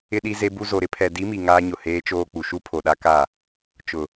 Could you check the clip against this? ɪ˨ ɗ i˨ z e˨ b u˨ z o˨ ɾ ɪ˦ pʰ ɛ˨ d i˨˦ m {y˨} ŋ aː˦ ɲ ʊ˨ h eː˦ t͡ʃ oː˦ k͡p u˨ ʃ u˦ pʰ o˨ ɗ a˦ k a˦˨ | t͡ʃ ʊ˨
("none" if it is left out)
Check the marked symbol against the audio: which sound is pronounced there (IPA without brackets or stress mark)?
i˨